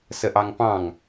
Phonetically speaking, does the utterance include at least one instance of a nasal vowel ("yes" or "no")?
yes